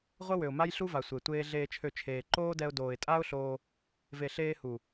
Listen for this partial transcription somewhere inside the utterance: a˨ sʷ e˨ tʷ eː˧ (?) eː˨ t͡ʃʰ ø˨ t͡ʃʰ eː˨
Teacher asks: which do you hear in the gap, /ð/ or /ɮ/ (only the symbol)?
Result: ɮ